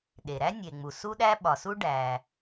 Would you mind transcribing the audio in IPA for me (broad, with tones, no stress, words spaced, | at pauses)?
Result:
ɗe˩ɾæ˥ nʲe˩ŋ͡mu˩ su˥ɗæ˥ ɓɒ˩su˥ ɖæ˩